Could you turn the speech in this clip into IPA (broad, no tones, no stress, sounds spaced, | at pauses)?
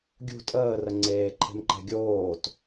ɡʲ ṳ tʼ əː r ə ŋ͡ǀ eː ǃʰ e̤ m ǃ ɛ̤ ɡʲ oː t